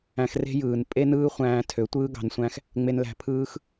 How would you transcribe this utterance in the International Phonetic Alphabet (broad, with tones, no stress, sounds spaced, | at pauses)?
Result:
æ̃˧ x r e̤˦ j ɯː˨ n pʼ e˦ n ɯː˦ χʷ æ̃ː˧ tʰ ø˨˦ tʷ ɯː˦ ɡ ɑ̤˧ n sʷ æ̃˦ x | ŋ͡m e˧ n l æ̤˧ pʰ ɯː˦ x